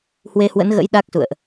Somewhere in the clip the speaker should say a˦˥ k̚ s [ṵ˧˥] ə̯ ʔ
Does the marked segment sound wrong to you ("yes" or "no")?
yes